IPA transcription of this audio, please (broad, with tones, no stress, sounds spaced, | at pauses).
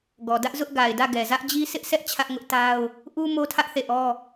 ɡ ɔ˨ d ä˦ ʔ z ʊ˦ ʔ ɡ a˨ ɪ̯ d ä˦˨ ɡ ɛ˨ z ä˦ ʔ d͡ʑ i˦ s ɪ˦ ʔ sʰ ɛ˦ ʔ t͡ɕʰ ä˦ ʔ ŋ ʊ˦ ʔ t a˦ ʊ̯ | ʔ u˦ m o˦ tʰ ä˦ ʔ θ e˦˨ ʔ ɔ˦